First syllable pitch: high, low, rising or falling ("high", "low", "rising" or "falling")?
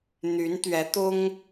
rising